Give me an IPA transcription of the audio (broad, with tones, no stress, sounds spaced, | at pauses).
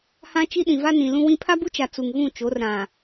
h ã˦ t͡ʃ i˦ ɗ ĩ˨ v a˦ n ĩ˨ l ũ˦ w ĩ˦ pʰ a˦ b u˦ t͡ʃ a˨ t͡s u˨ ŋ ɣ ũ˦˨ t͡ʃ o˨˦ r ɾ ã˨